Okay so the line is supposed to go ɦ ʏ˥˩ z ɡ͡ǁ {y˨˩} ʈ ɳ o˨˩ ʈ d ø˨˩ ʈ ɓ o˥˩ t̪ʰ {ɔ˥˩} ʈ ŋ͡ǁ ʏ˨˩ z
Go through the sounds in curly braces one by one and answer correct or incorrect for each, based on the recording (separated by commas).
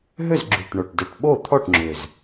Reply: correct, correct